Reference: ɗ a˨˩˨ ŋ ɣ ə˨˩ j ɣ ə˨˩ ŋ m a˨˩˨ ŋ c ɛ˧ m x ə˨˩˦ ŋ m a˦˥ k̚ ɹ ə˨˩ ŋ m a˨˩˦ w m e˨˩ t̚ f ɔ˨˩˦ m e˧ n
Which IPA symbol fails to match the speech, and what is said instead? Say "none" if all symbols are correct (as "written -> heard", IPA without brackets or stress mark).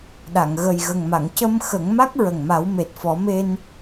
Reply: ɛ˧ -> ə˧